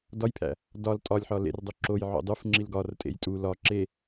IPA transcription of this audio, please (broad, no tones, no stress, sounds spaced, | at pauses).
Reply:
d ɒ j pʰ æ̰ | d ɒ l tʼ ɒ lʲ ħ ɒ l ḛ r dˤ o ǁ o j ʕ o̰ dˤ u f ŋ͡ǁ i l ɡ ɒ r tʼ ḛ j tʼ u l ɒ ǁ e